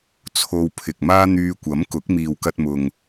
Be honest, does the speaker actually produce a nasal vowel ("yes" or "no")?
no